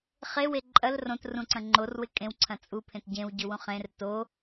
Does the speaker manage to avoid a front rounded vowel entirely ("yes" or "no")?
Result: yes